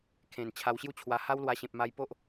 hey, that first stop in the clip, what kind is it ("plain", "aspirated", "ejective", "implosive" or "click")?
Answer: aspirated